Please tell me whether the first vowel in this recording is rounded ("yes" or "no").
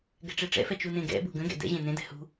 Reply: no